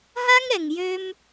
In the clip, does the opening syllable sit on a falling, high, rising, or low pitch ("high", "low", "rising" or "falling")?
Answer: high